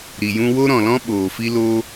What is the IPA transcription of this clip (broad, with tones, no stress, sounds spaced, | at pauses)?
ɾ i˨ j ũ˧ w o˦ ɾ ɔ̃˨ l ɔ̃˦ ɓ oː˨ f i˦ l o˦